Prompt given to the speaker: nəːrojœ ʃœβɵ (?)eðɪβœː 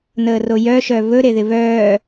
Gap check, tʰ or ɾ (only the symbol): ɾ